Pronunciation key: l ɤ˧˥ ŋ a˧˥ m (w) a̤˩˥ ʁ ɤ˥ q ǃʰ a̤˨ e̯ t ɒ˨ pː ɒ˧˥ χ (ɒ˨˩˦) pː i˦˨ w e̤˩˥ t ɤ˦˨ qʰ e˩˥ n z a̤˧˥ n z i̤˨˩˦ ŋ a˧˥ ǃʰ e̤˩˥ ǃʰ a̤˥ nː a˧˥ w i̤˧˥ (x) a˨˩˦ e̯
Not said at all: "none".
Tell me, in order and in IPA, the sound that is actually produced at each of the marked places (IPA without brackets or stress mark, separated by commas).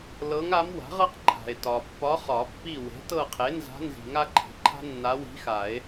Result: w, ɒ˨˩˦, x